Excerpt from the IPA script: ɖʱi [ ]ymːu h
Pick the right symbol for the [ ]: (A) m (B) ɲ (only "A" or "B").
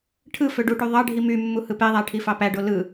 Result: A